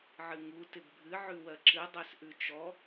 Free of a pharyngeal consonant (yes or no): no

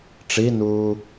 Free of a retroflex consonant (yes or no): no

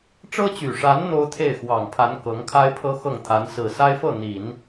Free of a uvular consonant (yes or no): yes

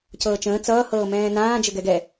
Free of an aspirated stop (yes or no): yes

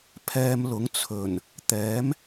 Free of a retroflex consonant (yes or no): yes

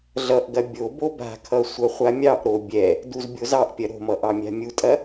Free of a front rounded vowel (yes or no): yes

